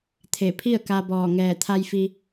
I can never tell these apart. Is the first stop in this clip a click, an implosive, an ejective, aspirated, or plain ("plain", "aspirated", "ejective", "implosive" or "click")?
aspirated